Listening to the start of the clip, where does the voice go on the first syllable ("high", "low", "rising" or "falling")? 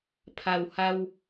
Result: low